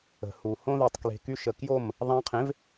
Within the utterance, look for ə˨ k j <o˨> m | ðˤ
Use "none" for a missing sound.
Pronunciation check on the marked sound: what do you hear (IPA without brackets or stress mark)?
o˦˨